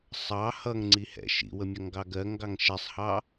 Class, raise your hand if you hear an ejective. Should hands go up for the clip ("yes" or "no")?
no